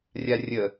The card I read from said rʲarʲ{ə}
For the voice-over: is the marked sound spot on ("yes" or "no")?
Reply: yes